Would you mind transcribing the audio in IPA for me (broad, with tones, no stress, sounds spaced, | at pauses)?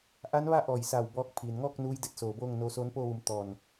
ʔ a˧˥ n ʋ a˥˨ ʔ ɔː˧˩ j s a˧˩ w b ɔː˧ k̚ pʰ iː˩ n ŋ ɔː˥˨ k̚ n uː˧˥ j d e˧ t̚ s oː˩ b oː˥˨ ŋ n oː˧ s oː˧˥ n p oː˥˨ ʋ u˩˧ m t̪ ɔː˧˩ n